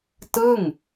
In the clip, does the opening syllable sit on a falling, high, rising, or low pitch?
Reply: falling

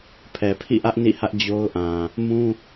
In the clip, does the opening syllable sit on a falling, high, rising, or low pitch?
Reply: low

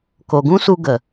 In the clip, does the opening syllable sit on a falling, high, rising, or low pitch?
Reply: low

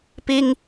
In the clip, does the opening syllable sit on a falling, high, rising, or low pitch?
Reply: high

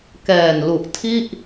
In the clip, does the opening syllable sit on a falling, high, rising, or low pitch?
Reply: low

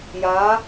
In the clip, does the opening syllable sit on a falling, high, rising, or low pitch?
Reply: rising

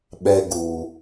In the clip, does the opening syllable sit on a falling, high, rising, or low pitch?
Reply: high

